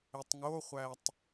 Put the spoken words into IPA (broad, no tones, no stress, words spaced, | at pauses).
etˤŋoχʷætˤ